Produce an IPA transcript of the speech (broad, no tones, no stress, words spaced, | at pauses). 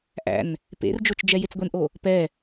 ʔæ̰n | pḛrd͡ʒot͡ʃ d͡ʒɛjet͡sɡʷenʔo | pɛ